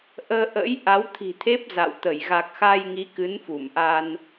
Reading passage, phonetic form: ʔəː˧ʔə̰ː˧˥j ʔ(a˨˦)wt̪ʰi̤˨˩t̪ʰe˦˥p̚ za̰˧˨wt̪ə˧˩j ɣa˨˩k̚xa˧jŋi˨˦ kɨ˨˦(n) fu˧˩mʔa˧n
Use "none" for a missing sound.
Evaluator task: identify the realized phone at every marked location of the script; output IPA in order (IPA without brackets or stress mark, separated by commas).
a˨˦, n